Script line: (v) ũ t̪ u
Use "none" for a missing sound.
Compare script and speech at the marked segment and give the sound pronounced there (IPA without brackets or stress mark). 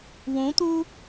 w